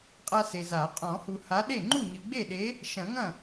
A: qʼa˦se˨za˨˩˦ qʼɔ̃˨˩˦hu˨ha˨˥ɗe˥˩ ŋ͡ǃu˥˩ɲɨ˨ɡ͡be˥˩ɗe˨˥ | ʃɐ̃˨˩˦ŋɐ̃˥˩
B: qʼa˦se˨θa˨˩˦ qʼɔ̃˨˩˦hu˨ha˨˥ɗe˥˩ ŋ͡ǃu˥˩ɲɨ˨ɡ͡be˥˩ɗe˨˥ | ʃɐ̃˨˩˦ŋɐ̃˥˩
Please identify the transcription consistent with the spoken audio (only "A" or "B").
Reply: A